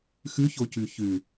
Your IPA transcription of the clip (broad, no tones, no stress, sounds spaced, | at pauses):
x ʉ ç o c ʉ ç ʉ